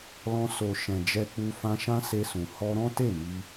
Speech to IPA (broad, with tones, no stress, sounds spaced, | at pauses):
l ɔ̃˧ s o˨ ʃ ɛ̃˨ d͡ʒ ɛ˧ k͡p u˧ f ã˧ ʃ ã˦ s e˧ s ũ˨ h ɔ˧ ɾ ɔ̃˦ t e˦˨ m i˧